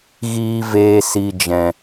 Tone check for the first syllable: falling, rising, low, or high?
low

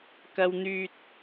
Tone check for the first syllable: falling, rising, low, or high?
high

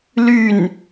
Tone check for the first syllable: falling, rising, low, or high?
falling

